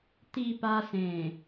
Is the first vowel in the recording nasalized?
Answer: no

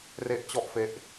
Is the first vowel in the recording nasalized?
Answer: no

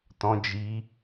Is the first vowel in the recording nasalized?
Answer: yes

